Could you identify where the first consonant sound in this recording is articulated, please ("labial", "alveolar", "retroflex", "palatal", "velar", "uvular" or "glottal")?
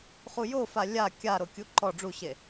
uvular